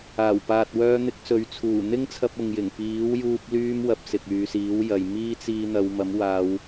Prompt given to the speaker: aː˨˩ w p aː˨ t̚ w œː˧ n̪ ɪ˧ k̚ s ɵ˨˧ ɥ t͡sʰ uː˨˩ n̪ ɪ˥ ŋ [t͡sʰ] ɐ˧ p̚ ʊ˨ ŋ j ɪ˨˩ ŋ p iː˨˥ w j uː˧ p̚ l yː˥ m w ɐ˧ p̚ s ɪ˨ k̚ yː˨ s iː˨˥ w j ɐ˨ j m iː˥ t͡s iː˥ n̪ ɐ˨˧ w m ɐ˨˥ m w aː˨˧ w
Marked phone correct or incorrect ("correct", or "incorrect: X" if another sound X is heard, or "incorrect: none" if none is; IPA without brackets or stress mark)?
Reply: correct